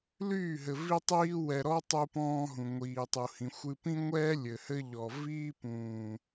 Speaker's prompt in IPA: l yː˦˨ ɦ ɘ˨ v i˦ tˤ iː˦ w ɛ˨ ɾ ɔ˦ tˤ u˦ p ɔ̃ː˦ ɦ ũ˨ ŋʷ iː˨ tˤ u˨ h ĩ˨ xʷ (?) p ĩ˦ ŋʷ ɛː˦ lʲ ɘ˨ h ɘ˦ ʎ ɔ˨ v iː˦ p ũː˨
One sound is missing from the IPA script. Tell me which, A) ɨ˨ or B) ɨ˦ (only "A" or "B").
B